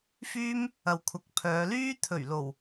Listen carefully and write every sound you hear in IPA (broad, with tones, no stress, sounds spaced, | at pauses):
f yː˥ m | ɐ˨ w kʷʰ ɐ˨˥ k̚ pʰ œː˨˧ l yː˥ t̪ʰ ɵ˨˩ ɥ l o˨˩ w